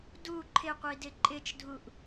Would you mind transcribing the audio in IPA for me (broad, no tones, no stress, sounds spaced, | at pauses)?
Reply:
d u ǃʰ ɪ qʷ i d ɪ ǃʼ ɪ t͡ʃ dʱ u ʔ